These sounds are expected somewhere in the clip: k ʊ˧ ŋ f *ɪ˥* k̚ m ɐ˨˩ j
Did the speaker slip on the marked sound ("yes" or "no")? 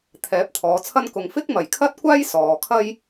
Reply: no